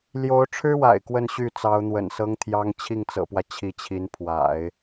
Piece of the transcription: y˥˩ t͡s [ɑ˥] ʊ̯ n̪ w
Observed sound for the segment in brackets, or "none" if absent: ɑ˧˥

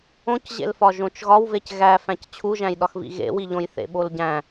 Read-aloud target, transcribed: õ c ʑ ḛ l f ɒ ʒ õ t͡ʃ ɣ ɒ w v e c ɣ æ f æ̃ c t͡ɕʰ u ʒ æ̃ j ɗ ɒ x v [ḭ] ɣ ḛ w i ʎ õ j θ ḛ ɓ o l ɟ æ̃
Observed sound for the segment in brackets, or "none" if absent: ḭ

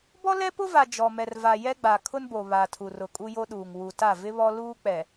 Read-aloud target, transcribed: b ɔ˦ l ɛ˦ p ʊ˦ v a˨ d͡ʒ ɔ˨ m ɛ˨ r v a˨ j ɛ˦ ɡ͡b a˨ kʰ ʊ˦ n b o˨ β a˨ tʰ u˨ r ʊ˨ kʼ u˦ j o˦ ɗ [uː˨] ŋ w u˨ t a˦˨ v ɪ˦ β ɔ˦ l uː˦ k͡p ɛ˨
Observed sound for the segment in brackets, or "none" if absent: uː˨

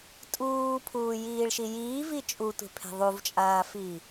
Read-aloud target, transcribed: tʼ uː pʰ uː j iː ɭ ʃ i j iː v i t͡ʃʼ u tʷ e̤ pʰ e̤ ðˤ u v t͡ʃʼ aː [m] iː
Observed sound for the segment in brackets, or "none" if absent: f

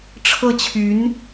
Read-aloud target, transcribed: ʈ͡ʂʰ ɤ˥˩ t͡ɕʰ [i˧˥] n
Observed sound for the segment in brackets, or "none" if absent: y˧˥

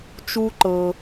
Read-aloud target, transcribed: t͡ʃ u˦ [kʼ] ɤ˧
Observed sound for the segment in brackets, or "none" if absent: ǃ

